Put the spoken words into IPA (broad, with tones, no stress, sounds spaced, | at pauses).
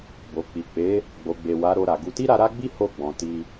b o˨ k͡p i˨ k͡p e˨˦ | ɡ͡b o˨ ɡ͡b e˨ w a˨˦ ɾ o˧ ɾ a˨ ɡ u˧ t i˦ ɾ a˧ ɾ a˦ ɡ͡b i˦ h o˦˨ ɡ͡b ɔ̃˨ t i˧